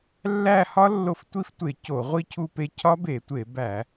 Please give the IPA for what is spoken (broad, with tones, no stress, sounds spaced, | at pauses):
lː æ˦˨ h ɒ˦˥ lː o˦˨ f tʷ i˦˥ f tʷ e˧˩˧ c o˧˩˧ ʁʷ i˦˨ cʰ u˦˨ p e˦˨ cʰ ɒ˦˥ b e˧˩˧ tʷ e˧˩˧ b æ˧˩˧